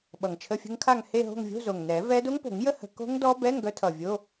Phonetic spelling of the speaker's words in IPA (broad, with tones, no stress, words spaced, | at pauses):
ɓʌ˨˩ŋt͡ʃʰə˧˥˧fʲə̤˦˥ŋkʰa˥˧ŋ he˥˧ɦo̤˥˧ŋ vʲo̤˧˥˧zo˨˩ŋ nɛ˨˩˦vɛ˦˥ do˦˥ŋpo̤˨˩˦ŋjə˦˥ hə̤˨˩˦ ko̤˦˥ŋdɔ˦˥bɛ˧˥˧ŋ ɡœ˦˥tʰʌ˨˩vʲo˧˥˧